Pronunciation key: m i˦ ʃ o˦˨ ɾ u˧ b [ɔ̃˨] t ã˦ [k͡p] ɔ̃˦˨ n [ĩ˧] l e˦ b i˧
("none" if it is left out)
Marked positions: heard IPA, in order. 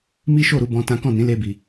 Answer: ɔ̃˦, k, ĩ˨˦

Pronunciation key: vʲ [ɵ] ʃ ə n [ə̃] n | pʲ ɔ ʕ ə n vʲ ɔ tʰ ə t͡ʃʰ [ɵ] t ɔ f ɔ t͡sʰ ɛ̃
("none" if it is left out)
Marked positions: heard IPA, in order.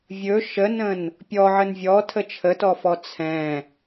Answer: ɵ, ə̃, ə

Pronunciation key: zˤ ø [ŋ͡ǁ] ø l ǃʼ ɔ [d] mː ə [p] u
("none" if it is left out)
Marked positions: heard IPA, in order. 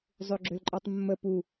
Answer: ɡ͡ǁ, tˤ, p

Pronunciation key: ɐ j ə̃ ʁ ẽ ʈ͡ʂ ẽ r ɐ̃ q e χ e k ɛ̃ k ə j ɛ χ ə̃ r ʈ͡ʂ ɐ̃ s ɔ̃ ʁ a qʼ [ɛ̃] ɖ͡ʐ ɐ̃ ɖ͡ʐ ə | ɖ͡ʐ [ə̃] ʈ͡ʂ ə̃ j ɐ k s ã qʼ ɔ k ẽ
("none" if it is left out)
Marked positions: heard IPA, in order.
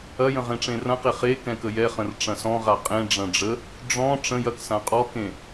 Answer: ẽ, ɔ̃

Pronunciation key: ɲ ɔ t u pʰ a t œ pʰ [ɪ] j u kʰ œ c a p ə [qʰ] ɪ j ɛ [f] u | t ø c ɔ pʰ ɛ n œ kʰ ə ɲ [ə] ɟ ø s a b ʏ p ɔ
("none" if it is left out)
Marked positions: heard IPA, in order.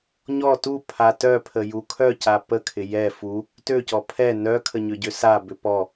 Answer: ə, kʰ, f, ʏ

